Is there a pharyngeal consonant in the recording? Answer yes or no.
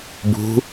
no